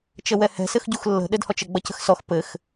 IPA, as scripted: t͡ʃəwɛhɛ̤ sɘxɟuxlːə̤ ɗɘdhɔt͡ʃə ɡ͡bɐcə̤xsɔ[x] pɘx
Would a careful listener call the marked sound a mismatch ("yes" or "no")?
no